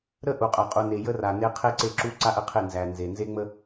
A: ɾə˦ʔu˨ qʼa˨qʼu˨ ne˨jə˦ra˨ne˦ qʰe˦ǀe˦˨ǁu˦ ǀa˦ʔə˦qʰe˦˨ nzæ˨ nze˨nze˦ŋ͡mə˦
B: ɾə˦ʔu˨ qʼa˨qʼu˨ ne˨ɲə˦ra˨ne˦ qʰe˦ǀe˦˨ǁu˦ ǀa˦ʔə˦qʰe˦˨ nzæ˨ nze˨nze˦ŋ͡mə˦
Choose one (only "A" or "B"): A